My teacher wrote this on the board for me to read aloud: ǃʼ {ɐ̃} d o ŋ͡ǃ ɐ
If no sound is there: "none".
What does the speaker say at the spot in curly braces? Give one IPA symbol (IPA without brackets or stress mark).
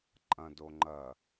ɐ̃